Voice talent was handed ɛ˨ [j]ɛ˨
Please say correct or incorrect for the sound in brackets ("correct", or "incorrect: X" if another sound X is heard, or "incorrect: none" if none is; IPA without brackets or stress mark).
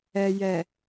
correct